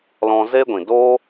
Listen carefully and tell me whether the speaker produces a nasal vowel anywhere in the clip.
yes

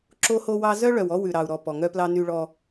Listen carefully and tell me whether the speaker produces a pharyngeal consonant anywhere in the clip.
no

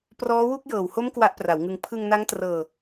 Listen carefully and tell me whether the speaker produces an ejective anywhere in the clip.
no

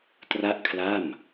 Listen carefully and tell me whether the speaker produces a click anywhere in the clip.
no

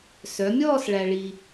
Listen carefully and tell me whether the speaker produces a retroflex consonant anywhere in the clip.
yes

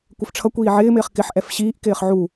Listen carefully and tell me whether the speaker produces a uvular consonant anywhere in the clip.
yes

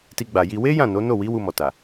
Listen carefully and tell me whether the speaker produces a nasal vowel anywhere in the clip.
yes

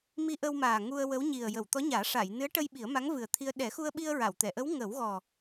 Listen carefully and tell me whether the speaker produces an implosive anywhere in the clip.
yes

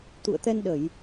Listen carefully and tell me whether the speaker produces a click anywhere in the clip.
no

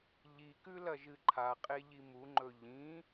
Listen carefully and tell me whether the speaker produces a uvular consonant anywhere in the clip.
yes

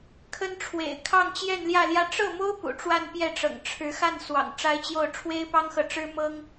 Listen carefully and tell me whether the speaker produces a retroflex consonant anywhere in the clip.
yes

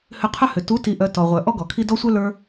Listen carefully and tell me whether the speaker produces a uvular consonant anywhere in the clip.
yes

